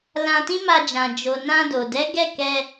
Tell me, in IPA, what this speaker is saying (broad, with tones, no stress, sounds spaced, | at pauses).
l ã˧ t ĩ˦ m a˧ d͡ʒ ã˨ d͡ʒ o˨ n ã˧ d o˨ d ɛ˨˦ ɡ ɛ˦˨ k ɛ˧